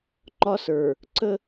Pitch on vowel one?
high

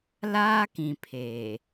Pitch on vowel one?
high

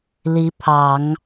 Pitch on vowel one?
rising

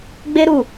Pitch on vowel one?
high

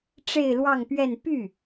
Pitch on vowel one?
falling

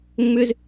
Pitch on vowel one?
high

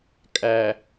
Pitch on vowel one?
low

